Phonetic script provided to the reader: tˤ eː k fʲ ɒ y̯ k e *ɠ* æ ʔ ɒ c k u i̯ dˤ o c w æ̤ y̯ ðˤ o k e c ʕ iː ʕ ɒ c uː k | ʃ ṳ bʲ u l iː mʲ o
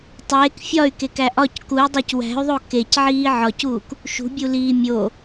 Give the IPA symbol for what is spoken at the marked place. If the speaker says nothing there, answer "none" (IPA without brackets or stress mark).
k